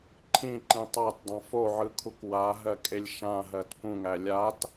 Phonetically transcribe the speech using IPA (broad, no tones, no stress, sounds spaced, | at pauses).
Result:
ǃʰ ĩ ǃ ĩ tˤ a t dˤ ã f o ʕ ɯ kʰ u k w a ɦ ɜ kʼ e lʲ ʃ ã ɦ ɜ t p ũ ŋ æ lʲ a t